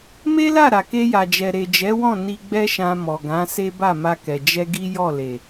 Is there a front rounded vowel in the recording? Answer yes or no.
no